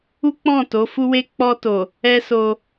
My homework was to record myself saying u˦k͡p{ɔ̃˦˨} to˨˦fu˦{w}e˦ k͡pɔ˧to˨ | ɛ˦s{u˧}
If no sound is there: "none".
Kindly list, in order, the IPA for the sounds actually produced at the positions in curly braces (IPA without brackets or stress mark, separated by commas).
ɔ̃˦˨, w, o˧